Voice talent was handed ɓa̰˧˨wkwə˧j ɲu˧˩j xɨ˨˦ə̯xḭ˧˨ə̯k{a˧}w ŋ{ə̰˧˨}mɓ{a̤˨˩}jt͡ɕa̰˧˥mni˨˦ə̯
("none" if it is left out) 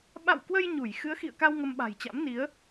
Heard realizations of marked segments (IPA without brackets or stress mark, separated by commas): a˧, ə˧, a̤˨˩